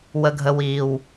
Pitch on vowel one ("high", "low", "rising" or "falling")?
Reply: low